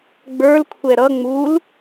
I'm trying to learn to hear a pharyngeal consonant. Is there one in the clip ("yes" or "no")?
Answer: no